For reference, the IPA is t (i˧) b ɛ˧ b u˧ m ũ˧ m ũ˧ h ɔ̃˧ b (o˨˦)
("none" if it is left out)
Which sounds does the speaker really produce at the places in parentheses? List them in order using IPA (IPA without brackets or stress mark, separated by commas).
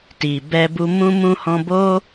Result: i˨, o˦